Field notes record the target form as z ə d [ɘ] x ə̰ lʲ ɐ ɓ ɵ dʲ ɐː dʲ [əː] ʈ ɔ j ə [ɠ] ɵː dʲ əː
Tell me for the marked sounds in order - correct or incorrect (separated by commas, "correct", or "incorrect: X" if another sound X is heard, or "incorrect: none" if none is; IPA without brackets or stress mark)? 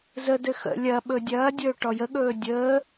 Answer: correct, incorrect: ɵː, correct